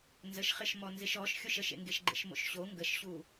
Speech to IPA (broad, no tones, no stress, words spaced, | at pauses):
nzəʃχɪʃmɔnzɪʃ ɔʃ xʲoʃəʃḛŋɡeʃ ɡ͡ǃḛʃmo̰ʃɕo ŋɡəʃɕu